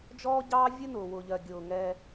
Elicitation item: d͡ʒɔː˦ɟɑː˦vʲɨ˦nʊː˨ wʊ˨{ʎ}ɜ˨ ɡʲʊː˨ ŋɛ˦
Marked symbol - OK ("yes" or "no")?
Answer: yes